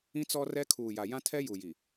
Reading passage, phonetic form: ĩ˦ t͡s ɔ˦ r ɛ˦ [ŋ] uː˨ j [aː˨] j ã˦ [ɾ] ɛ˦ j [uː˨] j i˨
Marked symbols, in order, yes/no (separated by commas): no, no, no, no